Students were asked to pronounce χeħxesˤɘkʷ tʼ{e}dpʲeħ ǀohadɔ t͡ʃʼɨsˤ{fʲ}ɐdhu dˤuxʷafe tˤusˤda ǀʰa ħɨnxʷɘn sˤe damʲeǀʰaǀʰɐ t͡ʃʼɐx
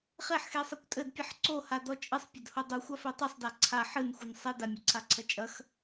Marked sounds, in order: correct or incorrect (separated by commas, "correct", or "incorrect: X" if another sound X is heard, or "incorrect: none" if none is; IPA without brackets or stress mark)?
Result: incorrect: ɘ, incorrect: pʲ